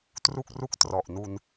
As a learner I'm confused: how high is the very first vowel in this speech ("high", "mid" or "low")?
high